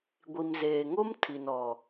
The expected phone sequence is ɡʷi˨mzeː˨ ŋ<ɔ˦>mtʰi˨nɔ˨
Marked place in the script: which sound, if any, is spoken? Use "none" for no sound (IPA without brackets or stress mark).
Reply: o˦